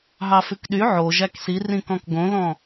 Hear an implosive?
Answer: yes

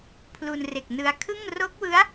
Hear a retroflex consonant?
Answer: no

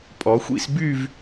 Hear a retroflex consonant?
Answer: no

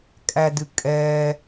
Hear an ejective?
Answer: yes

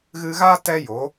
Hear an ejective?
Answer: no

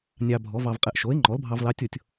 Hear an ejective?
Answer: yes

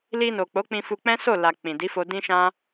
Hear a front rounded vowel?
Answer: no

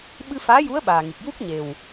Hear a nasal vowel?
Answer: no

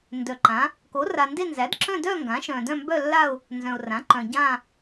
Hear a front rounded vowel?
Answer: yes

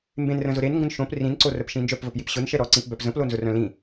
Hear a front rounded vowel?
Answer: yes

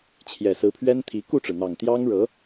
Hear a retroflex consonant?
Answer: yes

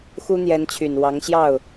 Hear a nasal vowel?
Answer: no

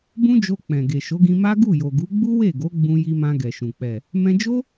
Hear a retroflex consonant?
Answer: no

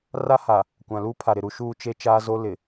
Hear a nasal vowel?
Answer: yes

